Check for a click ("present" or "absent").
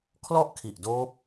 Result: absent